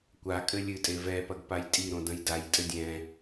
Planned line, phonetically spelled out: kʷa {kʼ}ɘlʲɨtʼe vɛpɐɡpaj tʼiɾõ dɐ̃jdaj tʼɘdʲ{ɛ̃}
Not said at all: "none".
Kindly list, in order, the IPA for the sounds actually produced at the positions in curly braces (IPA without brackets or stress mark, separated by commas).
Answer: kʼ, ɛ̃